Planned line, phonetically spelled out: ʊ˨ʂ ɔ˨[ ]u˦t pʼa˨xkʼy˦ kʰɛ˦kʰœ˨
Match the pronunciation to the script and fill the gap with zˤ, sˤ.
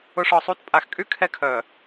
sˤ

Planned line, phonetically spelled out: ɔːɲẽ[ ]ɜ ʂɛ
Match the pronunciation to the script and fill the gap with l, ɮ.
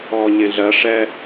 ɮ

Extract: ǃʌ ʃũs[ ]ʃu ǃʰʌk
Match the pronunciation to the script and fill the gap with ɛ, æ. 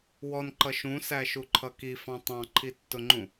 æ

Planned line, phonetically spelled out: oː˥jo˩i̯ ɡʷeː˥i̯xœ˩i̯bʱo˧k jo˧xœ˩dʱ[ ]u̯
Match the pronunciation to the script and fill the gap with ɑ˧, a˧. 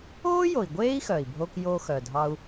ɑ˧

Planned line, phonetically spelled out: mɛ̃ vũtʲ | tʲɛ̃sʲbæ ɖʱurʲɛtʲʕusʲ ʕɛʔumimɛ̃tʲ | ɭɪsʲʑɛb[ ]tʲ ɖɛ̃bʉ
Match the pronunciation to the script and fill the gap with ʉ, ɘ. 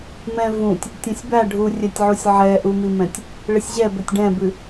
ɘ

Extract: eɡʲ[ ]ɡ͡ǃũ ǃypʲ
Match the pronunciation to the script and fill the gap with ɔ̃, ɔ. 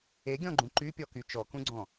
ɔ̃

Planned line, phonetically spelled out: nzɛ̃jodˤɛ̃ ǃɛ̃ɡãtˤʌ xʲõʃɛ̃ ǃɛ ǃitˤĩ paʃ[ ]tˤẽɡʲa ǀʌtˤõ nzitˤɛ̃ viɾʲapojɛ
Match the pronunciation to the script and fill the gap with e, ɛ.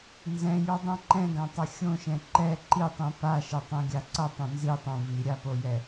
e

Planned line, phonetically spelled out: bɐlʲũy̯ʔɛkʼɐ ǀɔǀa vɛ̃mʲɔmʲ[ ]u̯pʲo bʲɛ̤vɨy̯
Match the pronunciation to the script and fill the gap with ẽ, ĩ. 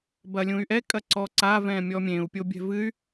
ẽ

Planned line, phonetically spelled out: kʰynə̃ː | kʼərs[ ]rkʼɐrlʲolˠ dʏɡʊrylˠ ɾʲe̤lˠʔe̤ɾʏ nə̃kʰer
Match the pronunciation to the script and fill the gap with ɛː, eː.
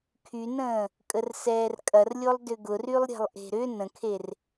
ɛː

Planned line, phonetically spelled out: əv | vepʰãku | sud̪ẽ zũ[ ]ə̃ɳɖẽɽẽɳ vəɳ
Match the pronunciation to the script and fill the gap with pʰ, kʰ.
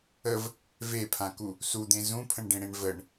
pʰ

